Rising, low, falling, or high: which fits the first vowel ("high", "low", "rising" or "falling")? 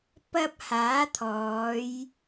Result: high